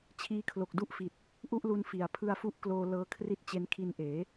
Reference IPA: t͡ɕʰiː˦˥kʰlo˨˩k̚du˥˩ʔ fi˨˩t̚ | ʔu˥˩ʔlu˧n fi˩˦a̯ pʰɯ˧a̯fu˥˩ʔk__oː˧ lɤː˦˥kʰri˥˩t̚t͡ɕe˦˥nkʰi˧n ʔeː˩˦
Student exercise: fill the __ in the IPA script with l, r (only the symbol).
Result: l